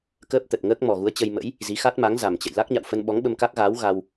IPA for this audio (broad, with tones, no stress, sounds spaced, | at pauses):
k əː˦˥ p̚ t̪ ə˨˩ t̚ ŋ əː˦˥ k̚ m ɔ˨˩ ɣ u˨˦ ə̯ t͡ɕ ə˧ j m ə̰˧˥ j | z i˨˦ x a˦˥ t̚ m a˨˦ ŋ z a˨˩ m t͡ɕ ə̰˧˨ j l a˦˥ k̚ ɲ a̰˧˨ w f ə˧ n ɓ ɔ˨˦ ŋ ɓ ə˧ m k a˦˥ k̚ ɣ aː˨˦ w ɣ a˧ w